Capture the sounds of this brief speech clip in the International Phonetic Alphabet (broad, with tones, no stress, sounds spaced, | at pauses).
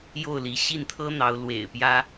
j o˥˩ ʊ̯ l i˧˥ ɕ i˥˩ n t̪ʰ ɤ˥ n̪ ɑ˧˥ ʊ̯ l w ḛ˨˩ ɪ̯ p j ä˥